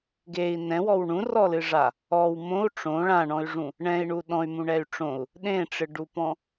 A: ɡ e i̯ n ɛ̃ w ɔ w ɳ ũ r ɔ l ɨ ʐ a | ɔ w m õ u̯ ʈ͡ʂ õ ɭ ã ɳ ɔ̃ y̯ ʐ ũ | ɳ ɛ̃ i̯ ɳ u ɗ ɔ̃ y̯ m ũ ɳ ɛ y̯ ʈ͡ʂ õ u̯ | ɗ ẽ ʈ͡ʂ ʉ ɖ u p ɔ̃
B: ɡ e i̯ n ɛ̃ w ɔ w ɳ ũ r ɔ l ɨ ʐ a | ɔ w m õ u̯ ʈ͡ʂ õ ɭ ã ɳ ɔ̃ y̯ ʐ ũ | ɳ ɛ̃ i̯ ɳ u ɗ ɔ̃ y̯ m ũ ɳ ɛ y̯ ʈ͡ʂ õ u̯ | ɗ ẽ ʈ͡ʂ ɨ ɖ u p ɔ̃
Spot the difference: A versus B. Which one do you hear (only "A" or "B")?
B